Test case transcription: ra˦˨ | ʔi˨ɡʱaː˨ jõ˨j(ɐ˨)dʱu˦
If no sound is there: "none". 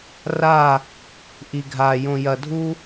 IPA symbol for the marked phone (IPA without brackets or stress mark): ɐ˨